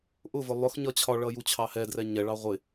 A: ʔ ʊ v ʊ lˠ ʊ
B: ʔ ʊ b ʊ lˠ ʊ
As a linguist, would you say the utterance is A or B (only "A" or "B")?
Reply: A